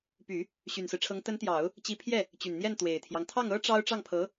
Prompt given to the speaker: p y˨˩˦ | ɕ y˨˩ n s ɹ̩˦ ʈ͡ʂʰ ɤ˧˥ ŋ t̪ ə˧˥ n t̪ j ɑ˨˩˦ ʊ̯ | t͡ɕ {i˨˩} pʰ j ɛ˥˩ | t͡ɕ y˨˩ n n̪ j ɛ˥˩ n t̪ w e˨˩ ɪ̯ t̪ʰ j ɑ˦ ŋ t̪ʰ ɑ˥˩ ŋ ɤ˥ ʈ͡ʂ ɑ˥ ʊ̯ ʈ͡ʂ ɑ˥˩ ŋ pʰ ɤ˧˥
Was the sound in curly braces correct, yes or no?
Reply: no